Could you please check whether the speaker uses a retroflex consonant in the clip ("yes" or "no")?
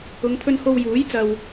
no